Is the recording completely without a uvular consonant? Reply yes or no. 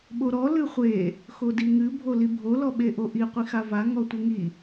no